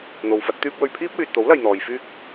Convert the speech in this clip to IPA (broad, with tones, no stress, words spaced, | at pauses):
n̪o˨wfɐ˨˥t̚ t̪yː˧p̚wɵ˨ɥ pʰiː˥p̚wyː˨t̚t̪o˨˥w lɐ˨jn̪ɔː˨j fyː˥k̚